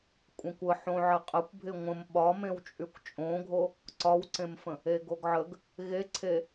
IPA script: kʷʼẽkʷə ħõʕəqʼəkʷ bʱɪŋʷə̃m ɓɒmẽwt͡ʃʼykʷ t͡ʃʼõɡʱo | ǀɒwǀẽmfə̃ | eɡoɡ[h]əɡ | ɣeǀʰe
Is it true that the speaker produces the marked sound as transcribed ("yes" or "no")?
no